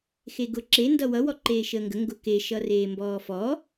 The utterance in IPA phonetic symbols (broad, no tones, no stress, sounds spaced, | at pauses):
x e ɡ ʊ ǁ e n d ʌ w ʌ w ɔ ǃ eː ʃ əː ŋ ɡ ə ŋ ɡ ʊ k e ʃ ʌ r eː m b ɔː f ɔ